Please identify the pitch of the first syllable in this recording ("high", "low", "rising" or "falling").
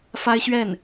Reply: high